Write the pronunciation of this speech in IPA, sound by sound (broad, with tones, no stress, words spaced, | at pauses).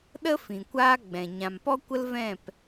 ɗə˦ fĩ˨kʷaː˦ɡ͡bɛ̃˨ ɲã˨mpɔ˦kʷə˦lvɛ̃˦˨p